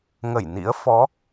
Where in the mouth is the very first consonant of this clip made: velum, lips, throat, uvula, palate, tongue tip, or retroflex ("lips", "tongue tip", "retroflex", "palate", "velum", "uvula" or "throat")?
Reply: velum